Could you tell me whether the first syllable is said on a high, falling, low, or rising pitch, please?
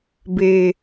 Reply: low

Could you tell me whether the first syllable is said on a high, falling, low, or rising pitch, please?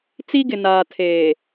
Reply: high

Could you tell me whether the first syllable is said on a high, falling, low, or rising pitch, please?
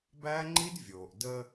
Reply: high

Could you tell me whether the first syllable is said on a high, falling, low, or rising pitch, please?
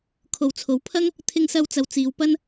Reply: low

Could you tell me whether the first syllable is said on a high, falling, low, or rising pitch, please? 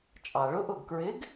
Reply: low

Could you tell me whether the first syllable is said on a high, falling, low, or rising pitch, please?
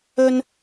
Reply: high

